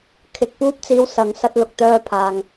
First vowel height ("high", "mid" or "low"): high